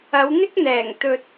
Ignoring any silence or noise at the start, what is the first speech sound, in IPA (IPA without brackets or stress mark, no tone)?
ɐ